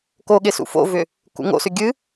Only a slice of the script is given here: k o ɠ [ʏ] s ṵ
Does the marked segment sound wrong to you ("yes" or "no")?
yes